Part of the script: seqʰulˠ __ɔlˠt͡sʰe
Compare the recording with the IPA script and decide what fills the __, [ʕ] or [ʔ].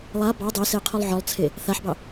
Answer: ʕ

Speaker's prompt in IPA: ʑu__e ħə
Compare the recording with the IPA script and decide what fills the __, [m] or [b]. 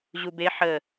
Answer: b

